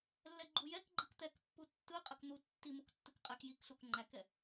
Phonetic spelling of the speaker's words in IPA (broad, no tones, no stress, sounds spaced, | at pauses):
lː ɛ ɡ͡ǃ u j ɛ k ɡ͡ǃ ɯ k t̪ ɛ k pː u tː ɯ qʼ ə k n̪ u tː i m u k tː ɯ k qʼ ɛ k j i k ɬ u k ŋ͡ǃ æ k ɛ